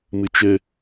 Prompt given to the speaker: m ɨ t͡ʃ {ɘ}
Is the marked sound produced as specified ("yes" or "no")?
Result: yes